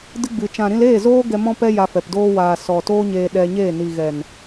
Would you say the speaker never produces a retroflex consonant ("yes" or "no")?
yes